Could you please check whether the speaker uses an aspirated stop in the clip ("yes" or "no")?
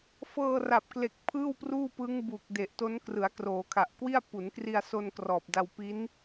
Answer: yes